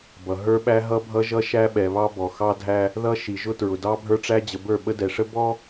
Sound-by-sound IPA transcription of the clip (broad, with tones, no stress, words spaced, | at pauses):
bʌ˨ ɦə˞˦ɓæ˦ɦʌ˦bʱʌ˦ ʒʌ˦ ʃæ˦ɓɛ˨βɑ˦ bɔ˨xɑ˦dʱæ˦ | ðʌ˦ʃi˨ ʒʊ˦tɹʊ˨ dɑ˦bʱə˞˦ʈ͡ʂæ˦d͡ʑə˨ bə˞˦˨ɓə˦dɛ˨ʂə˦ bɔ˦